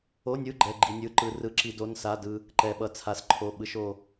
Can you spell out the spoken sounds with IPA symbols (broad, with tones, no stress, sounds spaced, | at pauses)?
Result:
o˧˥˧ nʲ ɯ˧˥˧ ɡ͡ǃ ɛ˧˥˧ ɡ͡ǃ i˧ nʲ ɯ˧˥˧ ǃ ɯ˧ r ɯ˧˥˧ ǁ i˧ d o˧˥˧ n s a˧˥˧ d ɯ˧ | ǃ ɛ˧ ɓ ʌ˧ t͡sʰ a˧ s ǃʰ o˧˥˧ ɓ ɯ˧ ʃ o˧